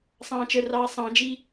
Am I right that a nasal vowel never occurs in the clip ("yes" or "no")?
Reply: no